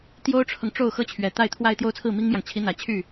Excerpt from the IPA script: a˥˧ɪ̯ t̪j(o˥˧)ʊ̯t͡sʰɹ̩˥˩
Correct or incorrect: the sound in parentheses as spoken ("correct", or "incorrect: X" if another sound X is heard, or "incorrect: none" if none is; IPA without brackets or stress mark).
correct